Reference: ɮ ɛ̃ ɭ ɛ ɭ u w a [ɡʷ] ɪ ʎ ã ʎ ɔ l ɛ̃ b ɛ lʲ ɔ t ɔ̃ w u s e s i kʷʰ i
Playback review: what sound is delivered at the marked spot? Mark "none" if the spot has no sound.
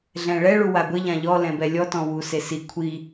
ɡʷ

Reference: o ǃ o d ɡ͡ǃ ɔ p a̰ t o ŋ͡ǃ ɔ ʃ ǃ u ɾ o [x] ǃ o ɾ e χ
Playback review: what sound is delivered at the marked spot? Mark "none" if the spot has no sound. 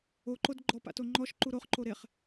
χ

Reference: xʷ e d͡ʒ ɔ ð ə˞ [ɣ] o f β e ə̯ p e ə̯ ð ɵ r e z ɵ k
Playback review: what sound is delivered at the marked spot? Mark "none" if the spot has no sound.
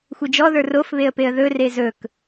r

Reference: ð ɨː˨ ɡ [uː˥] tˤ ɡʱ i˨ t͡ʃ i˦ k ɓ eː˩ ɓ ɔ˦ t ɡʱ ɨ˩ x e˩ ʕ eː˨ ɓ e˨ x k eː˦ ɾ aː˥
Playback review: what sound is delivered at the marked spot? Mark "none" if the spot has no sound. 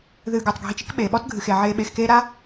uː˩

